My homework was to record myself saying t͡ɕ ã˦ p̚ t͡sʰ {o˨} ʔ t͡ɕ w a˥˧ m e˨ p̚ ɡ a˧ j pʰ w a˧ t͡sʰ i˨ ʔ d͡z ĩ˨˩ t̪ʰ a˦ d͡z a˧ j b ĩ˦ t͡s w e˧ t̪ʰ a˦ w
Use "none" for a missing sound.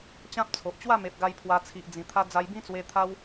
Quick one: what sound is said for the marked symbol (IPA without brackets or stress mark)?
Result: o˨